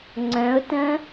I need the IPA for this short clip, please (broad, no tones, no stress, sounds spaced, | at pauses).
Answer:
ŋ͡ǀ œ̃ ʊ̯ t ə̃